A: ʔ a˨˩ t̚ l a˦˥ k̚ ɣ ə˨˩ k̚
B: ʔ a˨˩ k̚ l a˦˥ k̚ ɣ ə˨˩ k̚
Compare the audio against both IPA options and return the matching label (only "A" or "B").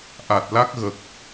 A